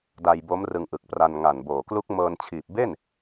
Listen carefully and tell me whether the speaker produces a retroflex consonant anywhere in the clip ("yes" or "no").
no